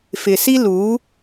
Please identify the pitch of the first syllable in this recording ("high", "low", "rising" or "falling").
low